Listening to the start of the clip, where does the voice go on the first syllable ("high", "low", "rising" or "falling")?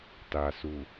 low